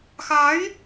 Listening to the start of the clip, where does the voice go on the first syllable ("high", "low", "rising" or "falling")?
rising